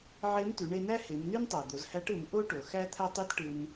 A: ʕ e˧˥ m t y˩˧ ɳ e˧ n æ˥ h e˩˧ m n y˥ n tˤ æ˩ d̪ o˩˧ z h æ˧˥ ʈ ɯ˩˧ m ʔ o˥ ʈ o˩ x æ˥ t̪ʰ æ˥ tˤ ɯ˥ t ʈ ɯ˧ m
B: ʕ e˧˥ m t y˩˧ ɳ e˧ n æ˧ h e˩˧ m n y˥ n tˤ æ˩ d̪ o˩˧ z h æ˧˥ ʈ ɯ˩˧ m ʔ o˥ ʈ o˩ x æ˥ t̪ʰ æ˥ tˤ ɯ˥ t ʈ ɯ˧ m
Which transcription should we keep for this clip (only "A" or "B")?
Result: A